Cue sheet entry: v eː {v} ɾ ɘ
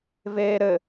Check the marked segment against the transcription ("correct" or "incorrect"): incorrect